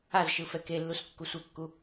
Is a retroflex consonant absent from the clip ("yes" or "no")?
yes